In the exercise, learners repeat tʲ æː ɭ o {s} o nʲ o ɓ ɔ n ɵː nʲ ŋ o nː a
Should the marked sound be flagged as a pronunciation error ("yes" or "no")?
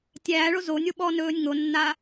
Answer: yes